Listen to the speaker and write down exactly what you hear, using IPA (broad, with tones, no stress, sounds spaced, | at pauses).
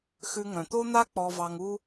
x ʉ˧ ŋ œ̃˩ t̪ o˥ n̪ a˥ k͡p ɔ˧ v ɑ˧ ŋ u˥